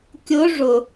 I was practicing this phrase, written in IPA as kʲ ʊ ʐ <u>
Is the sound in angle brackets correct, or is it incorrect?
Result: incorrect